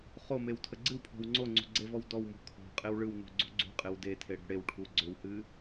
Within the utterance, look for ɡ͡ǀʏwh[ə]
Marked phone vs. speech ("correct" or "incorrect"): incorrect